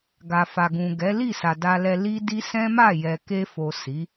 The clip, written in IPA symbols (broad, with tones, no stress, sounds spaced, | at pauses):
ɡ a˨ f a˨ ɡ ũ˨ ɡ ɛ˨˦ l i˦˨ s a˨ d a˧ l ɛ˧ l i˦ d i˦ s ɛ̃˦ m a˦˨ j ɛ˨ k e˧ f o˨ s i˨˦